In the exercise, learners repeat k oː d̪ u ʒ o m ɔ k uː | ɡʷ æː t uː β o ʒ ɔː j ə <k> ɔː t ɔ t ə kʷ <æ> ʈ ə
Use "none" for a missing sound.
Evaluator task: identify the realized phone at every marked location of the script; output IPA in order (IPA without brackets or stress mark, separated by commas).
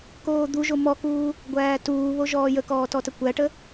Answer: k, æ